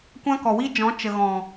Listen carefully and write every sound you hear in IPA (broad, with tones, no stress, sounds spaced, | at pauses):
kʷ ã˦ k ɔ˨ w i˦ d͡ʒ ɔ̃˨˦ t͡ʃ ə˨ ɣ ɔ̃˨